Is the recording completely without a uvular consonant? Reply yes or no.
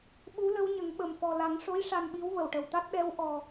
yes